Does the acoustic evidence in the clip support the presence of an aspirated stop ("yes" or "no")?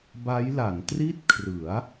yes